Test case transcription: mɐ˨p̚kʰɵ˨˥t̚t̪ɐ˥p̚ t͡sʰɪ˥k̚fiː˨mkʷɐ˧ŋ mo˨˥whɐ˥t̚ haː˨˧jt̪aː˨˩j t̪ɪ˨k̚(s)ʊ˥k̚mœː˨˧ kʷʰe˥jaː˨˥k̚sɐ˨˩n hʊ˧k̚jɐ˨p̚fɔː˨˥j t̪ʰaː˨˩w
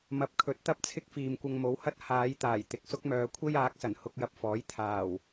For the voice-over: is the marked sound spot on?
yes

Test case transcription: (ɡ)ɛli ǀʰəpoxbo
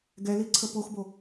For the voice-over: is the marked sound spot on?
yes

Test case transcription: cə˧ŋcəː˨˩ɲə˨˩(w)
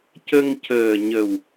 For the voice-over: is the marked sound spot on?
yes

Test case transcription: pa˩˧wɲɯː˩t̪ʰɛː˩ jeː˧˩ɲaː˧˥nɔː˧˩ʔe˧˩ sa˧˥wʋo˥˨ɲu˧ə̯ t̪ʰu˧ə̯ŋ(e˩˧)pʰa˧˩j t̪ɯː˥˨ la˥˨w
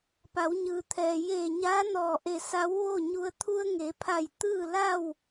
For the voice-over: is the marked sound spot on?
yes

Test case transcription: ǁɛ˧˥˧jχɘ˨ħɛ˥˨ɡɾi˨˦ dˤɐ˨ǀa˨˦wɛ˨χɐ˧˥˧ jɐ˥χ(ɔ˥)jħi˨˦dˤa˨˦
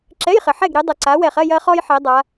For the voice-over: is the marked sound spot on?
yes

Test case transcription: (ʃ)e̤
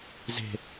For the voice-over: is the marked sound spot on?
no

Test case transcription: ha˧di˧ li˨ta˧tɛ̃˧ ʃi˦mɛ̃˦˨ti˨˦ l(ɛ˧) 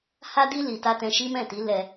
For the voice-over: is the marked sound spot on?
yes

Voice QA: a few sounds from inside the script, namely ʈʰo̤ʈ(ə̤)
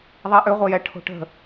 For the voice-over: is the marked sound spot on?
yes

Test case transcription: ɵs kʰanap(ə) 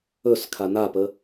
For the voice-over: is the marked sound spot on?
yes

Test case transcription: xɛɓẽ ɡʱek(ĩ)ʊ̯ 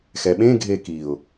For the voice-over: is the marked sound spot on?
no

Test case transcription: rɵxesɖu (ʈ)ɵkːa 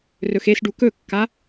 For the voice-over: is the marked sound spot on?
no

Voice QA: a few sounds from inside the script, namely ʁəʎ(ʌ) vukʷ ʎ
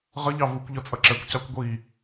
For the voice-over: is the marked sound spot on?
no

